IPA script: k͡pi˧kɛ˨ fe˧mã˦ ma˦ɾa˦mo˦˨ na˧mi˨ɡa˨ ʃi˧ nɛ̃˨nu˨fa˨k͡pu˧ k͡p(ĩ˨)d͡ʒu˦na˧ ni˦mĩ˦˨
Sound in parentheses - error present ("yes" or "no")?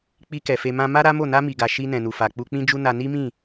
yes